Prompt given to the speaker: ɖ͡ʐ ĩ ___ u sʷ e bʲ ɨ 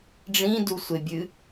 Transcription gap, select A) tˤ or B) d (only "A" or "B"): B